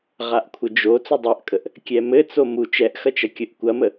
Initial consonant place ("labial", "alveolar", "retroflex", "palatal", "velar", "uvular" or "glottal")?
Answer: uvular